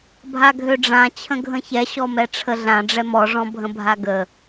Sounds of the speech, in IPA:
bʱ a ɡʱ ø ɖ͡ʐ ã t͡ɕʰ ə̃ ɡʱ ə̃ ç ɛ ɕ ɔ m ɛ ʈ͡ʂʰ ə ɮ ã ɖ͡ʐ ɛ m ɔ ʐ ɔ̃ bʱ ə̃ bʱ a ɡ ə

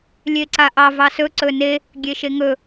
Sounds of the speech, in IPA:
lʲ e ǀ a ʔ ɑ v ɑ s ɵ ǀ ɵ n e | ɡʲ e ʃ e ŋ ɵ

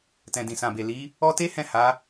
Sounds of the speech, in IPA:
t ɛ̃˨ d ĩ˨ s ã˨ b e˨ l i˨˦ | ɔ˦ t e˦ h ɛ̃˦˨ h a˨˦

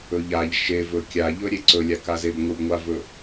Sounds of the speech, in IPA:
ɵ ʎ a ʎ ʃ e v ɵ kʲ a ʎ ɵ ɾʲ e ǀ ɵ lʲ a k a z e b ŋʷ ɨ b ŋʷ a v ɵ

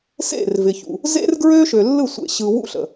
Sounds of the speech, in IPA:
s ḛ˦˨ r v ɪ˨ ç ṵ˨ | z ḛ˦ r ɡ ɹ ø˦ ʃ ø˨ lː ɯ˦˨ sʷ ḛ˨ ɕ ɯ˦ w ṵ˦ ɬ ə̰˨

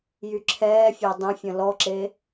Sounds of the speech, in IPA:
j y ǁʰ ɛː fʲ a dˤ ə̃ fʲ ə̃ l ɔ ǁ e

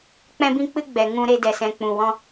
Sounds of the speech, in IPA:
k͡p ɛ̃˧ b ĩ˧ k͡p ɨ˧ ɡ͡b ɛ˨ ŋ ũ˧ ɾ e˧ d ɛ˨ s ɛ̃˨ k͡p ũ˨ w ɔ̃˧

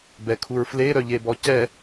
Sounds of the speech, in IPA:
b ɛ kʰ u ɹ f l e ɾ œ ʎ e b ɔ c ɛ

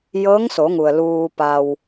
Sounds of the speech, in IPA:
j ɤː˧˥ ŋ s o˩˧ ŋ u˩ ə̯ l uː˧ p a˧ w

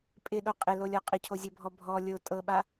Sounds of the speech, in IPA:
pʼ ɪ ɗ o qʼ ɪ l o lʲ ɔ qʼ ɪ cʰ o zʲ ɤ bʱ ɔ bʱ ɔ lʲ o tʼ ɤ ɓ a

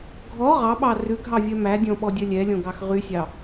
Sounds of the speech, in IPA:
ɡʱ ɔ ʁ ɑ ɓ ɑ r ʉ ɡʱ ɑ vʲ œ m æ dʲ ɔ̃ ɓ ɔ dʲ œ lʲ ɛ lʲ ɔ̃ ɡ ɑ x ʁ y sʲ ɑ

